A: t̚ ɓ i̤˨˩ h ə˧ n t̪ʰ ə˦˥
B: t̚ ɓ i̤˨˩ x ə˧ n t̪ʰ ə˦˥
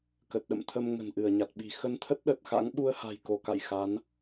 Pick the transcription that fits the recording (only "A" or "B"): B